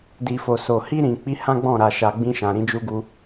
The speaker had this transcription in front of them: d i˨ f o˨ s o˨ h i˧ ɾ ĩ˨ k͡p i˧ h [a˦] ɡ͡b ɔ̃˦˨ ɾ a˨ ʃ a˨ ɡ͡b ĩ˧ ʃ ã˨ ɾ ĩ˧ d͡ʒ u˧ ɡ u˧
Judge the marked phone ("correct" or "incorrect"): incorrect